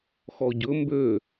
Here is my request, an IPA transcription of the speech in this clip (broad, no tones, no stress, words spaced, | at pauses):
xɔɟɵ mbø